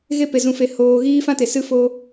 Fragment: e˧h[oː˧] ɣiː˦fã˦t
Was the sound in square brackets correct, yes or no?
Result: yes